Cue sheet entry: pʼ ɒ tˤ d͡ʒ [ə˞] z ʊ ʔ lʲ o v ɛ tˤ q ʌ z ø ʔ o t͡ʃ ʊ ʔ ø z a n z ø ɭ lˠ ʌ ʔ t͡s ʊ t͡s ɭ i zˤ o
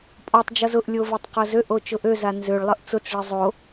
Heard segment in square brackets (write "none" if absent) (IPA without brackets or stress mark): ʌ